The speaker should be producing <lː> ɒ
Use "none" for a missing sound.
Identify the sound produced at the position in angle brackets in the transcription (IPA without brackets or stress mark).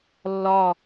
lː